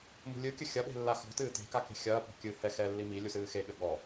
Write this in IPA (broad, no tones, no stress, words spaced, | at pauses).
mṳlʲɨkʲɘ xʲɐɓe̤ lːaxɔ̤tɨː te̤ka ke̤xʲɐːpɔ̤ kʲɨ hɛ xɛlːi milʲu sɨːxeɠɘ ɠɔ